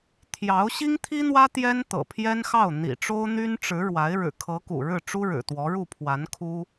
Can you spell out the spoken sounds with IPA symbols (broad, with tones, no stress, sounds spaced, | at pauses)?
t̪ʰ j ɑ˧˥ ʊ̯ ɕ i˥ ŋ t̪ʰ i˥ n̪ w ä˥ t̪ j ɛ˥ n t̪ ɤ̰˨˩ pʰ j ɛ˥ n x ɑ˥˩ ʊ̯ n̪ ḭ˨˩ ʈ͡ʂ o˥ ʊ̯ n̪ y˥ n ʈ͡ʂ ɻ̩˧˥ ɻ w a˧˥ ɪ̯ ɻ ɻ̩˨˩ kʰ ɤ˧˥ k ṵ˨˩ ɻ ɻ̩˥˩ ʈ͡ʂ u˥ ɻ ɻ̩˨˩ t̪ w ɔ˧˥ ɻ u˥˩ pʰ w a˧˥ n kʰ u˥